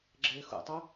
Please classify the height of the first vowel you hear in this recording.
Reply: mid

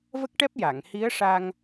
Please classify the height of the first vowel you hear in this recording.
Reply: mid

